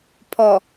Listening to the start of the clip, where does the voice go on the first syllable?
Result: low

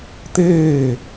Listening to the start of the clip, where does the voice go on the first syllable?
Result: falling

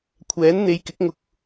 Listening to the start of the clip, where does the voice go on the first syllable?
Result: rising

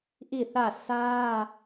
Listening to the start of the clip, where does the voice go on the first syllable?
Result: falling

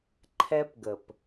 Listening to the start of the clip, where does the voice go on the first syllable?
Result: high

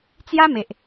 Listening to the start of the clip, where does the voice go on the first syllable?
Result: high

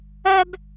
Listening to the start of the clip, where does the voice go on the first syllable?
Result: high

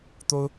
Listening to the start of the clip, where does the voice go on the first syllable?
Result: high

